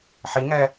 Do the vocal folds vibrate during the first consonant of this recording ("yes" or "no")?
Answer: no